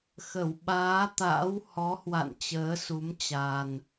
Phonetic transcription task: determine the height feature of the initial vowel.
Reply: mid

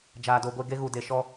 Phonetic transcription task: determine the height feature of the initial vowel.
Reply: low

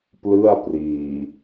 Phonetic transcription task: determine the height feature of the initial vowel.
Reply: high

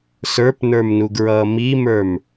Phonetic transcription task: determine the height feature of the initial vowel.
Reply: mid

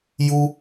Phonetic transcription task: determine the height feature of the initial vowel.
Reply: high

